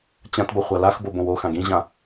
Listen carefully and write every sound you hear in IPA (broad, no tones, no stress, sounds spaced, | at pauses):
t͡ɕ ã t b ʌ χʷ a l a x b o b õ w o x ã ɡ ĩ ʑ ã